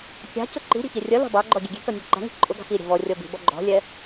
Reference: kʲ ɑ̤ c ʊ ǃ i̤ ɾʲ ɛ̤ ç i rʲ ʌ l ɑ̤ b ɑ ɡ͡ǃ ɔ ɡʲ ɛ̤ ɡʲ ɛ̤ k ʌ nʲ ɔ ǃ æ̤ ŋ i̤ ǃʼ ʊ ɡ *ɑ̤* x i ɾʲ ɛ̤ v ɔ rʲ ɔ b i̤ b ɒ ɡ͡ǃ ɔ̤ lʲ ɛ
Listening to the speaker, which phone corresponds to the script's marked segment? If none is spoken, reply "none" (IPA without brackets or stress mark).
ɑ̤